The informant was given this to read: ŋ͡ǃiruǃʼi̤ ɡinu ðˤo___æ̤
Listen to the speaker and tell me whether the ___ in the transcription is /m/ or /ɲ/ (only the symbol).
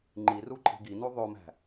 m